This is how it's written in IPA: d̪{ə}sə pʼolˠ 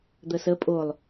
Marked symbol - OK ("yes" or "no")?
yes